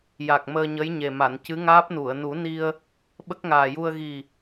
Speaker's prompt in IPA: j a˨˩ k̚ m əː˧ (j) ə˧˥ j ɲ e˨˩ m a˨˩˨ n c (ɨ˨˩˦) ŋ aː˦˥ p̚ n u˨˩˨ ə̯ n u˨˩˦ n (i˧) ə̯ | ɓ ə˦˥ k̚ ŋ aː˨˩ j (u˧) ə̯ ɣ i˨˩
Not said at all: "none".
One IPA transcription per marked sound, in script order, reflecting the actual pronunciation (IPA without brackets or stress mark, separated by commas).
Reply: ɲ, ɨ˧˥, i˧, u˧